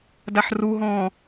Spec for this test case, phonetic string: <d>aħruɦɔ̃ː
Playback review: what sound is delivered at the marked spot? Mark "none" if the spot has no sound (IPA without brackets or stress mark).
d